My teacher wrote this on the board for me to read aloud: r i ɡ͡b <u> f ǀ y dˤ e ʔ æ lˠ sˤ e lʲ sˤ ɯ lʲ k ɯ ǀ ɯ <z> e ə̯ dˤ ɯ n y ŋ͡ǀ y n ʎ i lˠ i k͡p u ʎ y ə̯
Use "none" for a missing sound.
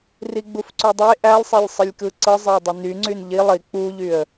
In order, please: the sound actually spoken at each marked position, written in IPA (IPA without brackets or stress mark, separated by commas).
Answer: u, zˤ